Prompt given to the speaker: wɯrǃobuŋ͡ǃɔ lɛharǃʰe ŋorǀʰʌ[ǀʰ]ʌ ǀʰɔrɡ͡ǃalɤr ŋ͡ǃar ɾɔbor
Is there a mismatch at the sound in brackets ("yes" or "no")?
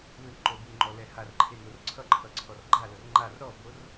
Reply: yes